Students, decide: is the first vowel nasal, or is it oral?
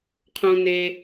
nasal